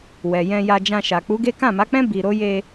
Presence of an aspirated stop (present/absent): absent